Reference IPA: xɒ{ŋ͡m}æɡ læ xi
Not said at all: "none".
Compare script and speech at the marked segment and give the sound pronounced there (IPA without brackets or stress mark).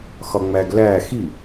ŋ͡m